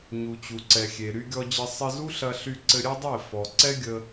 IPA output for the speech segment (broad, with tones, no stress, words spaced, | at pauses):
ɲu˨t͡ɕu˨ǀɛ˨ xʲe˨ ɾy˧ɡʲɔ˧d͡ʑɘ˧ sˤɘ˧zu˦ɬɐ˧ ɬy˧ǀɘ˧ɾʲɛ˦dˤe˦˨ fɔ˨ ǀɛ˦ɡʲə˧